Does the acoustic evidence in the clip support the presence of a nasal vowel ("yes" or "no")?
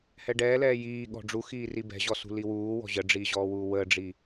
no